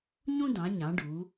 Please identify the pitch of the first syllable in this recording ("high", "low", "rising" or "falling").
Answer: high